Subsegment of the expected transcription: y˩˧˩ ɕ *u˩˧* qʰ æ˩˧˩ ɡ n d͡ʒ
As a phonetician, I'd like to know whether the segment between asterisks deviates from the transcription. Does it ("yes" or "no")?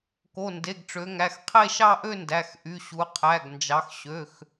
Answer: no